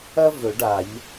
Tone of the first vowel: high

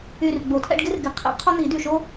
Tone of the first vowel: low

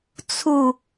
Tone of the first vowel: falling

